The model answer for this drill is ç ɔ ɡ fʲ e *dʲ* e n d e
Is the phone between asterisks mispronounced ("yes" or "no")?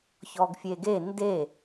yes